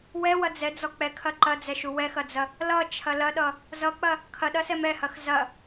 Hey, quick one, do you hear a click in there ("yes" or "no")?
yes